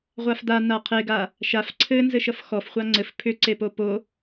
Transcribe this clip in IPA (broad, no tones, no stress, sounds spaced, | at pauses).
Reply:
ʁʷ a f d̪ a n̪ a qʰ e ɡ a | ʃ a f ǀʰ ɘ n z ɘ ʃ ʌ f x ɔ f χʷ a ŋ͡ǀ ɘ f pʰ ʏ ǀ e p o p o